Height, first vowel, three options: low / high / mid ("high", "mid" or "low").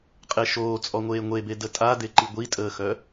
mid